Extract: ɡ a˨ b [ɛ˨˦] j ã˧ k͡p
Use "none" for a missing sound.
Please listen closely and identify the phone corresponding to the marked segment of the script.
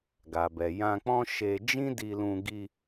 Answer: ɛ˨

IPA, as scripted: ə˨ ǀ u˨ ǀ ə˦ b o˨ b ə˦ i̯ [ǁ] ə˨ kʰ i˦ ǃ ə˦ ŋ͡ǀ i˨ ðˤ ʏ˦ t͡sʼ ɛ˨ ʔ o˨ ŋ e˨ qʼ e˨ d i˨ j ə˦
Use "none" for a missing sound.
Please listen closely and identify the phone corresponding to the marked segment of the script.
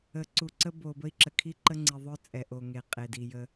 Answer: ǁ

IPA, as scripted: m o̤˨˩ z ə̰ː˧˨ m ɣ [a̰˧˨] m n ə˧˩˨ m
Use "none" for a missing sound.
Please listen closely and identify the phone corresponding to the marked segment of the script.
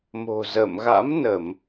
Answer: a̰˧˥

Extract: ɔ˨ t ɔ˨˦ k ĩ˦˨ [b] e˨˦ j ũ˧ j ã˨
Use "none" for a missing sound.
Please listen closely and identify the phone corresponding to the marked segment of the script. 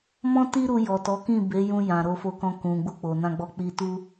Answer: b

